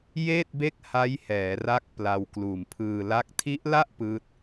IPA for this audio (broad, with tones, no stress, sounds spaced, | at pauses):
j eː˥˩ t̚ b e˥˩ k̚ h a˦˥ j h ɛː˩˦ r a˦˥ k̚ p l a˧ w k l uː˨˩ m pʰ ɯː˧ l a˥˩ k̚ tʰ i˦˥ ʔ l a˥˩ ʔ p ɯː˦˥ t̚